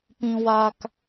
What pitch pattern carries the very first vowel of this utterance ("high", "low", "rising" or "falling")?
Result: high